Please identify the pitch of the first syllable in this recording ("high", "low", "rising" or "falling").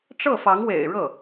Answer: falling